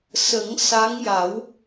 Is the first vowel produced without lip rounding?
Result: yes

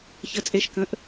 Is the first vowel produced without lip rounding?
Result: yes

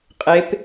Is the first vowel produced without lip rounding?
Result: yes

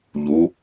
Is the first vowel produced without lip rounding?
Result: no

